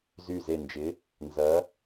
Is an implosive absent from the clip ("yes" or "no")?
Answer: yes